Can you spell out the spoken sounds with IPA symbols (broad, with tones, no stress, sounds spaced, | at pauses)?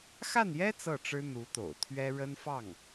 x a˥˩ n j ɛ˥ t͡s ɤ˥˩ ʈ͡ʂ ɻ̩˥ n̪ u˧˥ t̪ o̰˨˩ ʊ̯ t̪ʰ ɥ ɛ˥ ɻ ə˥ n f ɑ˥˩ ŋ